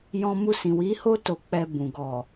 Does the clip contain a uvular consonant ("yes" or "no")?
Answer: no